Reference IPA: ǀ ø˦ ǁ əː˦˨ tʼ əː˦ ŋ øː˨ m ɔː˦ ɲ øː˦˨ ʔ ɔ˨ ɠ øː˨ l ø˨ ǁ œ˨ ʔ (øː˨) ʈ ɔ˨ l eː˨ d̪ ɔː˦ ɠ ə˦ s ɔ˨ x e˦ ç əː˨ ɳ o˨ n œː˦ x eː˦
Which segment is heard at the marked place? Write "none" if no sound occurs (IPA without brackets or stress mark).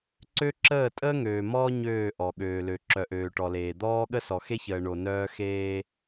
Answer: øː˨